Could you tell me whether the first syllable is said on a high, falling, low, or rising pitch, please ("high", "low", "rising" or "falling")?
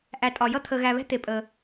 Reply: low